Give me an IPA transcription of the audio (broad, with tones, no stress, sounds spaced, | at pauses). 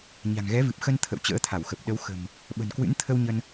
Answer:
ɲ a̤˨˩ ŋ ɣ ɛ˨˦ v ɨ˨˩ p̚ x ə˧ n t̪ʰ ə̰˧˨ w t͡ɕ ə̰ː˧˥ t̪ʰ a˧˩ w x ə˨˩ p̚ ɗ ə˨˦ w x ə̤˨˩ m | ɓ ə̤˨˩ n k w ɨ̰˧˥ n t̪ʰ ə˧ w ɲ ə˧ n